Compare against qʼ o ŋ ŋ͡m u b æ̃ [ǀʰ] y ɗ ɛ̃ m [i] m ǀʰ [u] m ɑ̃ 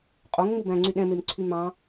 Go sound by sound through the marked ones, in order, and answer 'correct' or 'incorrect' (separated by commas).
incorrect, incorrect, incorrect